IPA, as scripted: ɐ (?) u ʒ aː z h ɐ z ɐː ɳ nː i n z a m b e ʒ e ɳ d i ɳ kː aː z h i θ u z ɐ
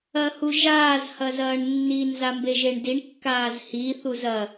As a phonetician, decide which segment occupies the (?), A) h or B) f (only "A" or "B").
A